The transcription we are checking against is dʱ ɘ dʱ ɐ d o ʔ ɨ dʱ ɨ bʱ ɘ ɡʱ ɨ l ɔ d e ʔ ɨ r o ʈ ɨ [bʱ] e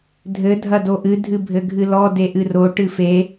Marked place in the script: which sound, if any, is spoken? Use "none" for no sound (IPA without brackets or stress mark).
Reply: f